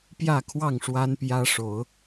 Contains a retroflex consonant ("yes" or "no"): yes